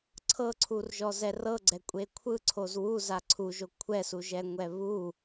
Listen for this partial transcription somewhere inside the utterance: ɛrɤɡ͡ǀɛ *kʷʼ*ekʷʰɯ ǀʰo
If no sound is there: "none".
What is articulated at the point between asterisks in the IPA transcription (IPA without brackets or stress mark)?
kʷʼ